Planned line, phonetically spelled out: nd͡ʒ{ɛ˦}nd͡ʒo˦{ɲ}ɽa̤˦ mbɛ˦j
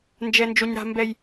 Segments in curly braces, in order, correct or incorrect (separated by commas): correct, correct